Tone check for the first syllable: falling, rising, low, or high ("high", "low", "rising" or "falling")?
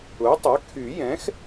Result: rising